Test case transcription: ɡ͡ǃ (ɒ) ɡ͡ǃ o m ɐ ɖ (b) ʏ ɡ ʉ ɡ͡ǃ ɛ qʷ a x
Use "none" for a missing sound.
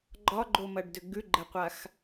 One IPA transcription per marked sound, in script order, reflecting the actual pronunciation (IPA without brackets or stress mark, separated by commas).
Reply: ɒ, d